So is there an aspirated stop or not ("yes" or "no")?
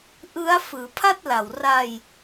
yes